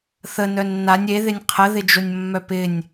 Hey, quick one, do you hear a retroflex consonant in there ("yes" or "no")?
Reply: no